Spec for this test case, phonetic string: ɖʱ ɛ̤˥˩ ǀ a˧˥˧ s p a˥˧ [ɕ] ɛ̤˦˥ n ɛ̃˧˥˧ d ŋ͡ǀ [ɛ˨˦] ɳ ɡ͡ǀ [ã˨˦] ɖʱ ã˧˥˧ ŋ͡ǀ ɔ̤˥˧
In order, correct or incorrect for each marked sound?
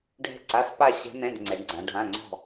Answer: correct, correct, correct

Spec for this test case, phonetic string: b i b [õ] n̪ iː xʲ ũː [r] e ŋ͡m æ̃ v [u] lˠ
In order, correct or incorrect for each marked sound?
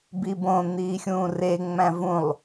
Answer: correct, correct, incorrect: ũ

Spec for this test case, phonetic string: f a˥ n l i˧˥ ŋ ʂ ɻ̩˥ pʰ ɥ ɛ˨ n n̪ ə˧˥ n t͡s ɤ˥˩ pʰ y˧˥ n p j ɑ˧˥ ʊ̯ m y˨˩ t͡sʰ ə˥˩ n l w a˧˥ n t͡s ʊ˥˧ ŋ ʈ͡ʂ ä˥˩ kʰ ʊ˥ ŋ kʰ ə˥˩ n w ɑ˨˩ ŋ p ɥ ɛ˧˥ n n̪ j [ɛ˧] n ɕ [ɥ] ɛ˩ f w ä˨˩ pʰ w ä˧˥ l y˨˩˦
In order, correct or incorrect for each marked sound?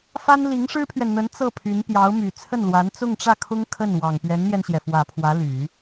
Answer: correct, incorrect: j

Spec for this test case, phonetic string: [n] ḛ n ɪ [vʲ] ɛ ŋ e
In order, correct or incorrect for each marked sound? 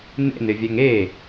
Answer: correct, correct

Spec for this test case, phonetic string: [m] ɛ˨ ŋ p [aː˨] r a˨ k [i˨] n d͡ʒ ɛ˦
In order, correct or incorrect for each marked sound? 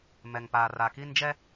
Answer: correct, correct, incorrect: i˦

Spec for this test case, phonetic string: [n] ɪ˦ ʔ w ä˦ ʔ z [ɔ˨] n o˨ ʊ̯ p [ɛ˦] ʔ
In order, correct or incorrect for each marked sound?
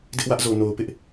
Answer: incorrect: d, incorrect: o˨, incorrect: ɪ˦

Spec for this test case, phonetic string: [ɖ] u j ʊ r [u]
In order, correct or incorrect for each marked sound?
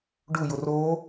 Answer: correct, incorrect: o

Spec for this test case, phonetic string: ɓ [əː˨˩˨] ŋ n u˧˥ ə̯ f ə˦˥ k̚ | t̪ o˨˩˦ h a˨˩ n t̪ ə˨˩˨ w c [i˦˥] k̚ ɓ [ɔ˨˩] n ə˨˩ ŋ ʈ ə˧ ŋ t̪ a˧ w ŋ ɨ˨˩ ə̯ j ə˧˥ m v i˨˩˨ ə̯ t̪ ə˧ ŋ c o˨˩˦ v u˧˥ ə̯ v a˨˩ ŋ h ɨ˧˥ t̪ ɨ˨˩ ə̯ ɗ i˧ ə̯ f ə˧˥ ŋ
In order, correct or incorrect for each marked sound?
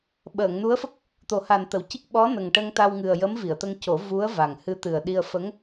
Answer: correct, correct, incorrect: ɔ˧˥

